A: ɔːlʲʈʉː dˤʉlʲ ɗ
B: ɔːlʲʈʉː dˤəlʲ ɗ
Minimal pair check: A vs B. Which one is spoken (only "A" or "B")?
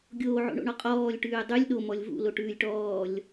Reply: A